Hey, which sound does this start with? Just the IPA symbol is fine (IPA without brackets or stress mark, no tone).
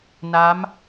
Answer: n